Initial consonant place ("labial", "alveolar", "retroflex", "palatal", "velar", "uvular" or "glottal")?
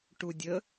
retroflex